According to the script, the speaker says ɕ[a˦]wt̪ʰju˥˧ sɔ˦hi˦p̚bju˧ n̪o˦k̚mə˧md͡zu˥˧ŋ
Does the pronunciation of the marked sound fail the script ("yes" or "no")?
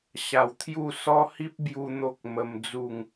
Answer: yes